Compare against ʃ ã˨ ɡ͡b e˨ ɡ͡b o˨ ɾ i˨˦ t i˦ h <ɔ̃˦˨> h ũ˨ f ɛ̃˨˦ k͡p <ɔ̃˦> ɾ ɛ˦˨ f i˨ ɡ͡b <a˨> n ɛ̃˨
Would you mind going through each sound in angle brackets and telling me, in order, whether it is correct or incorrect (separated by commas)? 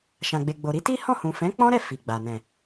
correct, correct, correct